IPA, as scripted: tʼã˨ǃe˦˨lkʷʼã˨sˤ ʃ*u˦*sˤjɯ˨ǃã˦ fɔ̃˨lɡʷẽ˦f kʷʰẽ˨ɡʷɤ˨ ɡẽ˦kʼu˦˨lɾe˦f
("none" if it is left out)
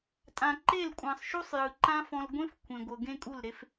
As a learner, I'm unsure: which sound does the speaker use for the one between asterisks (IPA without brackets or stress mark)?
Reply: u˦